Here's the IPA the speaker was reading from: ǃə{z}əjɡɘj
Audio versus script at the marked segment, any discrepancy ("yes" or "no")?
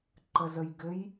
no